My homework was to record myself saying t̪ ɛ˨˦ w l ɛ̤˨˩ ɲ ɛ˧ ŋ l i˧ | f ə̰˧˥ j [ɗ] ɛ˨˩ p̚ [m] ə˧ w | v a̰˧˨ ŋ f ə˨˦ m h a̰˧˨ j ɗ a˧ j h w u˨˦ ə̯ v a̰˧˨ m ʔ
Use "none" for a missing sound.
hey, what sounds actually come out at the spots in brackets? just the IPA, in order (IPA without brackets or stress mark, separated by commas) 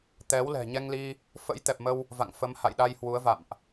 t̪, m